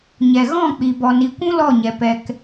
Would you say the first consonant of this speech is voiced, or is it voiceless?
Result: voiced